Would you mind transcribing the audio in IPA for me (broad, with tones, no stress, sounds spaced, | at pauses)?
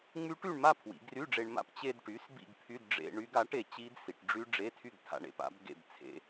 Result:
ŋ͡m y˦˥ ʈ y˥˧ ɳ m a˥˧ pʰ w ḭ˩˧ ɡ r y˧˥˧ ɖ͡ʐ e˧ ɳ m a̰˥˧ p t͡ɕ e˧ d ʈ y˩˥ s b ḭ˥˧ ɡ pʰ y˧˥˧ d ɖ͡ʐ ḛ˧ ɳ y˦˥ ɡ a˩˥ ʈ e˩˧ t͡ɕ i˦˥ d s i˩˧ ʈ ɖ͡ʐ y˦˥ ɖ͡ʐ e˧˥˧ tʰ y˥˧ ɡ tʰ a̰˧ ɳ ḛ˩˧ p a̰˩˥ b ɡ ḛ˥˧ b t͡sʰ ḛ˦˥